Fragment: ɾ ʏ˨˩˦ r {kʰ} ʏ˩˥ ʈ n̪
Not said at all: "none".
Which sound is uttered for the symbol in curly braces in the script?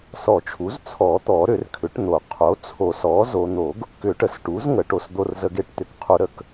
kʰ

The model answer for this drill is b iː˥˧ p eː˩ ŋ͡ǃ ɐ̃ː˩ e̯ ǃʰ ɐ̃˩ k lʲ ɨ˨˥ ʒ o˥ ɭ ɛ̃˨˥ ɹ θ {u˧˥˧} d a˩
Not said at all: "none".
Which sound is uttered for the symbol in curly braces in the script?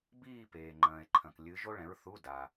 u˧˥˧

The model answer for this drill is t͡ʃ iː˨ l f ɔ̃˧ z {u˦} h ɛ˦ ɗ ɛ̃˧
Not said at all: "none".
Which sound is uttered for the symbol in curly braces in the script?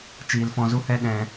u˦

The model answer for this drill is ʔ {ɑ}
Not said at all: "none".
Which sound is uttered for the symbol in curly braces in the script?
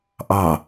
ɑ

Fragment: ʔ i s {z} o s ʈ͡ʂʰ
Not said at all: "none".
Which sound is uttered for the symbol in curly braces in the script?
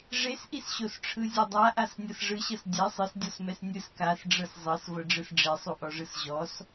ɕ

